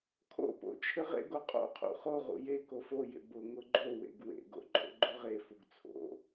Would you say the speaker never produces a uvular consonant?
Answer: no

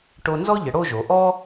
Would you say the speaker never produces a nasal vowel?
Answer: yes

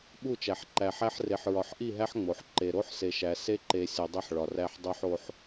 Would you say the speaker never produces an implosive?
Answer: no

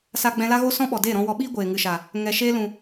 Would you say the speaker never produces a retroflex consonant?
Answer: yes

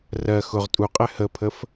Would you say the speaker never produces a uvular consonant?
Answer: no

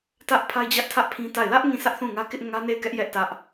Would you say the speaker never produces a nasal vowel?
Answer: no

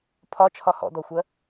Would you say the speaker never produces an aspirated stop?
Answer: no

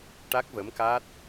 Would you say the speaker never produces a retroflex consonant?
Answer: no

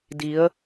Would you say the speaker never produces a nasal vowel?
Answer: yes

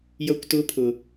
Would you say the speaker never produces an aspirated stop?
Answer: no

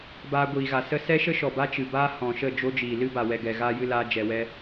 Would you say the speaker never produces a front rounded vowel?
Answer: yes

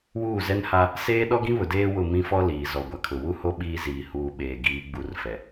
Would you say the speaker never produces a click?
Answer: yes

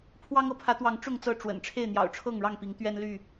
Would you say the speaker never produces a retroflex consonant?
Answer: no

